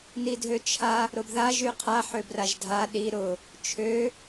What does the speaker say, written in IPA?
n i dʱ ø t͡ʃʰ a | ɾ ʊ b ð a ʒ y qʰ a ħ ø b r a ʒ dʱ a ɗ i ɾ ʊ | t͡ʃʰ ø

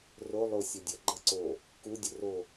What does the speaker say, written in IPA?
r o lˠ o sʲ ɔ dʲ ɐ ɡ͡ǃ ɐ ǀ o | k u dʲ o r o

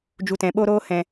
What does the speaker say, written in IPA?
d͡ʒ u˧ t ɛ̃˨˦ ɓ o˦ ɾ oː˦ h ɛ̃˧

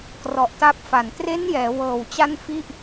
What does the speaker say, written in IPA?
k r ɔ˨˩ ʔ t a˦˥ p̚ f a˨˩ n t r e˦˥ n j ɛː˩˦ w ɤː˨˩ w t͡ɕ a˥˩ n f i˥˩ ʔ

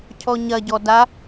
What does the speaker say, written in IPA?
cʰ ɔ ɲ ɐ ɟ ɔ d a

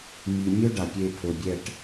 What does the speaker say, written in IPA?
m i˨ mʲ ɵ˥ ɖ a˨ pʲ e˦˨ pʰ ɵ˨ bʲ ɛ˦˨ ʈ

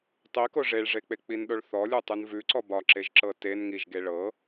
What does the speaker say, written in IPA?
tˤ i k o ʐ e ɭ ʐ e k͡p e k͡p i n ɗ o ɭ θ ɔ lʲ u tˤ u n v ʉ ǀ ɔ b ɒ ǁ e ʒ ǁ ɤ t e n ŋ i ʒ ɡ e ɭ ɤ

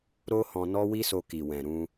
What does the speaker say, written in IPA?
ɾ o˦ h ɔ̃˧ n ɔ˦ w i˦ s o˧ k i˨ w ɛ̃˨ ɾ ũ˧

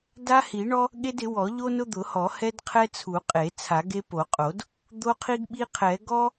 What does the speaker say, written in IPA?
d a˦ h i˨˩˦ ɳ ɔ˦ | ɠ e˦ d ɪ˨˩˦ w ɔ˨˩˦ ʎ o˦ n ʊ˦ d̪ ʊ˨˩˦ h ɔ˨˩˦ h ɛ˦ d qʰ ɛ˦ t͡sʰ u˨˩˦ qʼ e˨˩˦ t͡sʰ a˨˩˦ ɡ e˦ p o˨˩˦ qʼ o˨˩˦ d | d̪ o˦ qʰ i˦ ɡ ɓ i˦ qʰ ɛ˨˩˦ ɡ ɔ˦

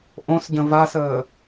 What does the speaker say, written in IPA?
ʔ õ s ɟ ə̃ v a s əː

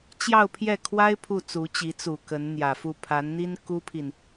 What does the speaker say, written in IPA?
t͡ɕ j ɑ˥˧ ʊ̯ pʰ j ɛ˥˩ kʰ w a˥ ɪ̯ pʰ u˥˩ t͡s u˧˥ t͡ɕ i˧˥ t͡s u˨˩ k ə˧˥ n n̪ j ä˨˩ f u˥˩ pʰ a˧˥ n n̪ i˥ n k u˥ pʰ i˨ n

